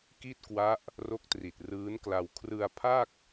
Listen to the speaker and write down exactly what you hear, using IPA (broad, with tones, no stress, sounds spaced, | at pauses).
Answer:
k i˥˩ t̚ k w a˦˥ ʔ | r o˦˥ k̚ t r i˨˩ t̚ r ɯː˦˥ n k l a˧ w kʰ r ɯ˧ a̯ pʰ a˥˩ k̚